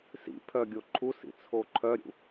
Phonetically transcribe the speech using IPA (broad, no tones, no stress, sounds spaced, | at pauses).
s ḭ pʰ œ ɡʲ o ǃʰ u s ḭ t͡sʰ o ǃʰ œ ɾʲ ṵ